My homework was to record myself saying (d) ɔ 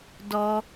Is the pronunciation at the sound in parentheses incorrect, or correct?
correct